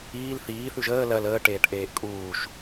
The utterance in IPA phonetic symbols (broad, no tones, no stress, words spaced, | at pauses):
iːl θiː θʉʒəː lɜl əː ʈeːʈʔeːʔkʼuːʃ